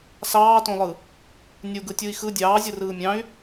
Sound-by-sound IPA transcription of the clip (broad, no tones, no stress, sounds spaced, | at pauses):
s ɑː t õ lˠ ɯ | nʲ u ɡ ɯ tʲ u i̯ x ɯ dʲ ɑː zʲ ɯ r ɯː mʲ ɑ̃ y̯